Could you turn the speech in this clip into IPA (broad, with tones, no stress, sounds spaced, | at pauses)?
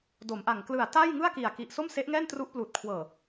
d o˩˦ m ʔ a˨˩ ŋ k l ɯ˨˩ a̯ t a˥˩ j ŋ ɯ˥˩ a̯ k i˨˩ a̯ k i˨˩ ʔ s o˥˩ m s e˦˥ ʔ ŋ ɛː˥˩ n t r u˦˥ ʔ p l uː˨˩ t̚ kʰ w ɤː˨˩